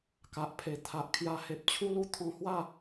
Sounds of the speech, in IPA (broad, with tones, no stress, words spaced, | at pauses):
ka˨ʔpʰe˨˩ t̪ʰa˨ʔkʰja˧ he˨p̚t͡ɕʰu˦lu˦ t̪ʰɔ̃˧hwa˥˧